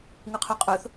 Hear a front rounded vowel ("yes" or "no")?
no